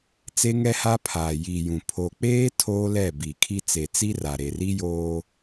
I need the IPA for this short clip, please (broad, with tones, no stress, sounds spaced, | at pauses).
t͡s e˦ ŋ ɛ˦ h a˦ pʰ aː˨ j i˨ j ũ˨ pʰ o˨ k͡p eː˦ tʰ oː˦ l ɛ˦˨ b i˨ kʰ i˦ t͡s e˨ t͡s i˦ r a˨ ɾ e˨ r i˦ j oː˦